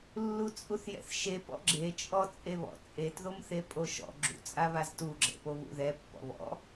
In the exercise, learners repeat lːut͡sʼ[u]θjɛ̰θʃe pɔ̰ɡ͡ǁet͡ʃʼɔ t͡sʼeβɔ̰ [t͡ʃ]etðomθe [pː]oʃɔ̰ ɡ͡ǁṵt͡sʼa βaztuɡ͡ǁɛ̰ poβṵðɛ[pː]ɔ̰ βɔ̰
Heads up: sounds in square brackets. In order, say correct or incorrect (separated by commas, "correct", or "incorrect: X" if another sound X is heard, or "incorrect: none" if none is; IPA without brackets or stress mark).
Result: correct, incorrect: t͡sʼ, incorrect: pʼ, correct